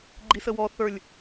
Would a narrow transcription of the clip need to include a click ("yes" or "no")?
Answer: yes